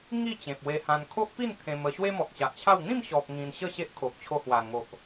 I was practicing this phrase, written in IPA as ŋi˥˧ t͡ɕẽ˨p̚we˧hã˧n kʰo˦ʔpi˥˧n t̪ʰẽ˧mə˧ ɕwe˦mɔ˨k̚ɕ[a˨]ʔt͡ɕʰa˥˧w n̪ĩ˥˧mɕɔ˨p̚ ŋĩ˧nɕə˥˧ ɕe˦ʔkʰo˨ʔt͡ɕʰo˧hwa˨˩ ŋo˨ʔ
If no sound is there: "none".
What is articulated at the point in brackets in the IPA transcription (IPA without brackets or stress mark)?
a˨